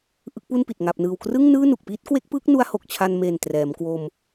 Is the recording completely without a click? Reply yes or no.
yes